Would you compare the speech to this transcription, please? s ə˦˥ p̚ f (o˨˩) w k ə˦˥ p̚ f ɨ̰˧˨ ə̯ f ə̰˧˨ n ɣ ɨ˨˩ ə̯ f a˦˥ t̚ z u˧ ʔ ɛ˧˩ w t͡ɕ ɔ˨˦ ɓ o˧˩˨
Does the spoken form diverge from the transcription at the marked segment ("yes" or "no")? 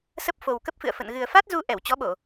no